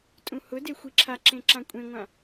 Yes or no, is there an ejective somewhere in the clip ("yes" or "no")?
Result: yes